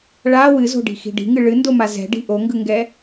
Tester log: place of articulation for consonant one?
retroflex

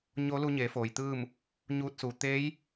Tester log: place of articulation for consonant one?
palatal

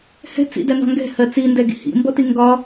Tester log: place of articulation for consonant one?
glottal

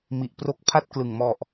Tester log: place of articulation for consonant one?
labial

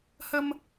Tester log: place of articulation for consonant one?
glottal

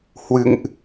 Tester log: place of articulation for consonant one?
glottal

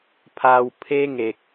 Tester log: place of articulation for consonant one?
labial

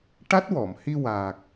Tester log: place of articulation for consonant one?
retroflex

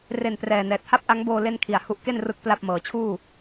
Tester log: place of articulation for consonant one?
alveolar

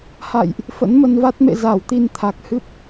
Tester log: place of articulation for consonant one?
glottal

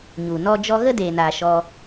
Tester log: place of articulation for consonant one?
palatal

